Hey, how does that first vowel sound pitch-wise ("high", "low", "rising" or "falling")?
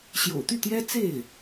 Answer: low